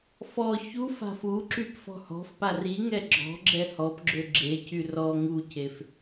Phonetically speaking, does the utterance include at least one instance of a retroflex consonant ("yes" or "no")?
no